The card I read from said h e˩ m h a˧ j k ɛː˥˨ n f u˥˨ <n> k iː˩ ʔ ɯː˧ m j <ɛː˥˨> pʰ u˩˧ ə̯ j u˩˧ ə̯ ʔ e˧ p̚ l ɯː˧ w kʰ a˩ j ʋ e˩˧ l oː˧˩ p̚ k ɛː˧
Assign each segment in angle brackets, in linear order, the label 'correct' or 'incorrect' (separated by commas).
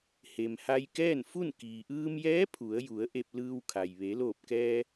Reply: correct, incorrect